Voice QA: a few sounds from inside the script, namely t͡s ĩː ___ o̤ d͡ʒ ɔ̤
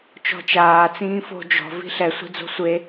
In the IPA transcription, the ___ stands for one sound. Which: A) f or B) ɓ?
A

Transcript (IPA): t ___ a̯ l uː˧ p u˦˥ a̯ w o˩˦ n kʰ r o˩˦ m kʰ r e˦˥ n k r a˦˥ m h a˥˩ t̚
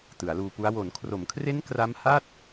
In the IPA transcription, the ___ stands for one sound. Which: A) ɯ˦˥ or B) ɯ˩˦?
B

